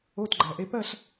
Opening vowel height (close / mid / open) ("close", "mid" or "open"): mid